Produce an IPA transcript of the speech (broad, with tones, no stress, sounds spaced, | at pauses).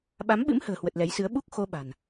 ɓ a˨˦ m ɓ ɨ̰˧˥ m h ə̤ː˨˩ h w ə˨˩ t̚ l ɛ˨˦ j s ɨ˨˦ ə̯ ɓ u˦˥ k̚ x o˧ ɓ a̤˨˩ n